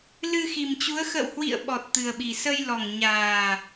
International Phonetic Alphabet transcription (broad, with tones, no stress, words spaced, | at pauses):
lɨ˧xi˨˩mt͡ɕu˨˦ə̯ xə̰˧˨w hwḭ˧˨ə̯ ɓɔ˨˩t̚t̪ɨ˨˩ə̯ɓi˨˩ sə˧jlɔ˨˩ŋɲaː˨˩